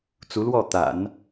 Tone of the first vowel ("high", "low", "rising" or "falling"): rising